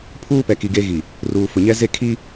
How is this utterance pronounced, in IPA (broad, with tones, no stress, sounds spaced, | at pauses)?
pʰ uː˦ p ɛ˨ k i˨ ɡ eː˦ ɣ i˨ | r uː˨ f ʊ˨ ɲ ɛ˦ z e˦˨ kʰ i˦